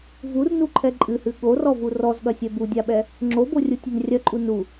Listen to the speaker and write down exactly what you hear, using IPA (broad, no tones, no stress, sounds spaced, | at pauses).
v u r n u ǃʰ ɛ ǃʼ ɨ h ɨ ɠ o r ɔ v u r ɔ z ɠ ɐ sʲ ɛ b u dʲ a ɓ ɛ | ŋ͡ǁ o b o rʲ u tʲ ɛ n rʲ ɐ ǃʼ u n u